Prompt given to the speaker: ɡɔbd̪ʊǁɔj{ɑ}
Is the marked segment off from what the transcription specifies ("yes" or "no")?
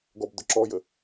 yes